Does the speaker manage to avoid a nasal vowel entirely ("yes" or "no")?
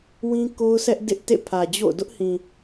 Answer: no